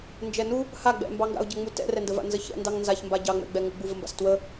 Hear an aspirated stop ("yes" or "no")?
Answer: no